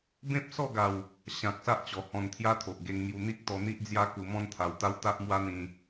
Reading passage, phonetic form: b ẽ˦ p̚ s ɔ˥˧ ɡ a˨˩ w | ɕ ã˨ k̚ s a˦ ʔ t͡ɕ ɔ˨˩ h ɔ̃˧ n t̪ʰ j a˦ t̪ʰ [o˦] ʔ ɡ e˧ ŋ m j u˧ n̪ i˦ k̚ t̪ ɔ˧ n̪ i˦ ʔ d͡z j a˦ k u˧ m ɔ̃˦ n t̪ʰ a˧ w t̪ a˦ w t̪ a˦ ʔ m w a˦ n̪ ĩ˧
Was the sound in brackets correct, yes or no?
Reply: no